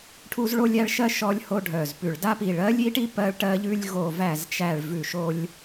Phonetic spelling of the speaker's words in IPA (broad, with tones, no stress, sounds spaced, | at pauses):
ʈʰ u˥ z ɭ o˥ lʲ æ˥ ɭ ʃ ɜ˥ ʃ ɔ˥ lʲ h o˥ ɖʱ œ˧˩ z p ʉ˧˩ ɭ d a˥ p i˧˩ ɭ ɜ˥ lʲ i˥ ʈ i˥ p ɜ˥ ɭ ʈ ɜ˥ ʎ ʉ˥ lʲ ɣ o˧˩ v æ˧˩ z t͡ʃ æ˧˩ ɭ v ʉ˧˩ ʃ o˥ lʲ